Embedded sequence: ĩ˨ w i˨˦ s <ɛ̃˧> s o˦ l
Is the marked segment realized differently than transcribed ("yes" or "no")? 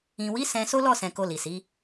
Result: no